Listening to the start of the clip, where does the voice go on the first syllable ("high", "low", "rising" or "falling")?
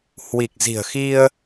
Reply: low